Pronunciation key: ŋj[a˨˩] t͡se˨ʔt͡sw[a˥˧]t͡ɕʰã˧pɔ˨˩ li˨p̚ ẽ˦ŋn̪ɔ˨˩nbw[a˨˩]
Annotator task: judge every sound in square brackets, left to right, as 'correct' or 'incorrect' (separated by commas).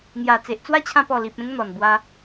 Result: correct, incorrect, incorrect